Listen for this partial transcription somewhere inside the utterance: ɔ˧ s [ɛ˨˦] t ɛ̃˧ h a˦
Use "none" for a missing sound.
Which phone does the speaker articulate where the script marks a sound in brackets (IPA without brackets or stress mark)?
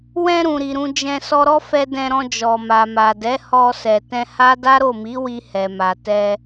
ɛ˨